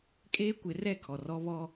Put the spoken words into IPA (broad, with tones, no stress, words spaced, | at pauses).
kʼeː˦kʷɪ˨˦ rɛ˦˨ kʰɔ˨rɔ˦βɔ˦